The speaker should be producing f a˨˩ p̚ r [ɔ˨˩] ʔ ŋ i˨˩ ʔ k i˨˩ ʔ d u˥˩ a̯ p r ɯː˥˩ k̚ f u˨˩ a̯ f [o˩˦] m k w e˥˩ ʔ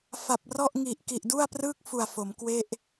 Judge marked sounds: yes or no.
no, yes

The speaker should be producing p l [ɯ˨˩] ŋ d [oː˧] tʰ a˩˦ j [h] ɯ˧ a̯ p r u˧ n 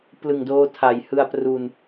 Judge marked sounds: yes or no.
yes, yes, yes

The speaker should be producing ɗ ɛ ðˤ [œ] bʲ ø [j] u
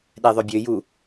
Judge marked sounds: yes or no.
yes, yes

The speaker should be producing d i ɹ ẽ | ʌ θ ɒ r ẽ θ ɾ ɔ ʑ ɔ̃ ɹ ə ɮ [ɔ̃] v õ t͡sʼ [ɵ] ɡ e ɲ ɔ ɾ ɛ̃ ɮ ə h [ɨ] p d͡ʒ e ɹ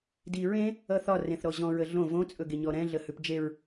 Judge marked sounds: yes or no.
no, yes, no

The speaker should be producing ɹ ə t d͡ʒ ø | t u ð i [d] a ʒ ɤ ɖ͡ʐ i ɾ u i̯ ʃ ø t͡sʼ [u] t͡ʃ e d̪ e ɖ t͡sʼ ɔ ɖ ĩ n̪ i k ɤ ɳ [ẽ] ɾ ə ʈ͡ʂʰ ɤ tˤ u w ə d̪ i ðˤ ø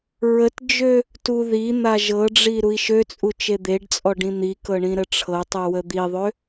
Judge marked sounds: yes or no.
no, yes, no

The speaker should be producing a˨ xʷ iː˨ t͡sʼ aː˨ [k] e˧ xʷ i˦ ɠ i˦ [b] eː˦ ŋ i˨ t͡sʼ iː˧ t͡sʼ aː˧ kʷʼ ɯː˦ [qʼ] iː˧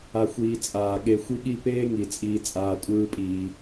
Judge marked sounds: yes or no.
no, no, no

